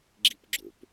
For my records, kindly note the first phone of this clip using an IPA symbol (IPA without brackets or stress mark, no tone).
ɡ͡ǁ